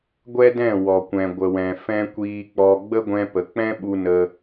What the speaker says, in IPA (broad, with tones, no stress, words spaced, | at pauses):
ɡʷɛ˦dɛ̃˦˨ wɔ˨kʷɛ̃˨ɡʷə˨wɛ̃˨ fɛ̃˧ kʷiː˧k͡pɔ˧ ɡ͡bə˦ɡʷɛ̃˧pə˨k͡pɛ̃˦ ɓu˧nə˧